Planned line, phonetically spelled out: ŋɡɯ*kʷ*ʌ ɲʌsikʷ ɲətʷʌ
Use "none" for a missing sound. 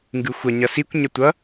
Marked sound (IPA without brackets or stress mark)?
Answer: xʷ